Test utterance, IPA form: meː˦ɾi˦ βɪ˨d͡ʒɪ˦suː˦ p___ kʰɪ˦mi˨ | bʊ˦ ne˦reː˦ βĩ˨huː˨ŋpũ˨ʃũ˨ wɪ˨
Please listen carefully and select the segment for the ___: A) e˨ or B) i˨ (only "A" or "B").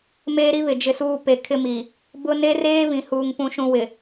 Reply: A